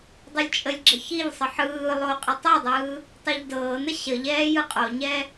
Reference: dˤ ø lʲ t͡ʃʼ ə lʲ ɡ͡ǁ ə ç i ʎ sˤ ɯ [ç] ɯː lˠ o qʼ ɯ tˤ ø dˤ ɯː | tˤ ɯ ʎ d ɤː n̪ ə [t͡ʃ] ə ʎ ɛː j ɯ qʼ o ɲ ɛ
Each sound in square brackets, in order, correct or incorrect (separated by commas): incorrect, incorrect